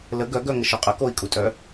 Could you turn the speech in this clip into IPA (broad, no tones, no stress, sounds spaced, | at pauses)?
l ə ɡ œ ɡ œ ŋ ə ʃ o qʼ ə k o i̯ kʼ u tʼ œ